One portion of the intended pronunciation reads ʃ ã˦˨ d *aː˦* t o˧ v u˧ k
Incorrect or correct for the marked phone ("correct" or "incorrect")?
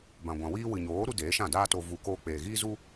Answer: correct